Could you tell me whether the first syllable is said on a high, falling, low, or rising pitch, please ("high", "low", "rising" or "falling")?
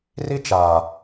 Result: high